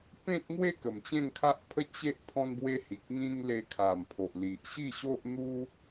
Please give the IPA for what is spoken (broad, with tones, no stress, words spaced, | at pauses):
pẽ˦t̚ŋwe˥˧ kə˨˩mt͡ɕẽ˥˧ŋkʰa˦ʔpʰə˥˧ t͡ɕe˦ʔ pʰɔ̃˦nbwe˦hi˨k̚ ŋĩ˦ŋ le˧kʰa˨˩mpʰo˨ʔ li˨ʔɕi˥˧ɕo˦ʔn̪u˦